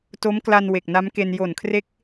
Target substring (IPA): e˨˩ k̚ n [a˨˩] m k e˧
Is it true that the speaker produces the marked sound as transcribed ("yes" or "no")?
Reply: no